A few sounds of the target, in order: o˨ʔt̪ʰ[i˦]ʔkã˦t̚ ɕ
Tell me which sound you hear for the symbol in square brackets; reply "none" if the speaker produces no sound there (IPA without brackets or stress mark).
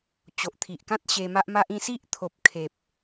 i˨